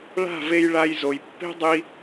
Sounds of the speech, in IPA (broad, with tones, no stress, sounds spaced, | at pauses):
ɭ a̤˦˨ v e˧ j ɭ a˧ j z o˨ j pː e̤˦ dˤ i˧